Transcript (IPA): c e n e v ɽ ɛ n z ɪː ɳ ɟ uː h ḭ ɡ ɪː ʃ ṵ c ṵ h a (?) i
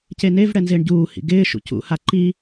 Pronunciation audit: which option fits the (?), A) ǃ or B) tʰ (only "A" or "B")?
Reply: A